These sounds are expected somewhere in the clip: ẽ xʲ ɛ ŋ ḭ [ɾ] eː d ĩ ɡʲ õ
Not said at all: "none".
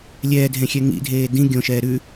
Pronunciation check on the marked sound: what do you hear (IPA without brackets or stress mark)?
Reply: dʱ